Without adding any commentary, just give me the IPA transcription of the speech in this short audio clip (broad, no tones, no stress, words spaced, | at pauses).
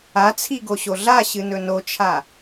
at͡sʰiɡoɕo ɮaɕɨnɵ not͡ʃʰa